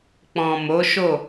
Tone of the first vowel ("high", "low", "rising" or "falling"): low